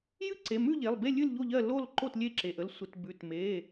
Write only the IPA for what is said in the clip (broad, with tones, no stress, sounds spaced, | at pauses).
j ɨ˥˨ ǀ e˩˧˩ m ʉ˥˨ ʎ e˩˧˩ lˠ b e˥˨ lʲ ɨ˥˨ l ʎ o˥˨ ʎ ɜ˥˨ l o˥˨ l ǃ o˥˨ t lʲ e˥˨ ǁ e˩˧˩ ʔ ə˥˨ l sʷ ə˩˧˩ t b ʉ˩˧˩ t m e˩˧˩